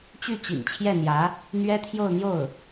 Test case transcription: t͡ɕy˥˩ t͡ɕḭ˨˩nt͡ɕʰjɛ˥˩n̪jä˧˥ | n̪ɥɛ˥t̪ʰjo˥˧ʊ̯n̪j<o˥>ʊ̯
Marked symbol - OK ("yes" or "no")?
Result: no